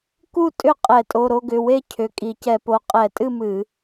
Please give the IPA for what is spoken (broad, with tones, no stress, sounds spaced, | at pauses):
k u˥˨ tʼ ʏ˥˨ qʼ ɛ˧˩˧ tʼ o˩˧˩ ɾ o˥˨ ɡ ʏ˩˧˩ w e˥˨ cʰ ʏ˩˧˩ kʼ i˧˩˧ c ɛ˧˩˧ p o˩˧˩ qʼ ɛ˧˩˧ tʼ ɨ˥˨ m ɨ˧˩˧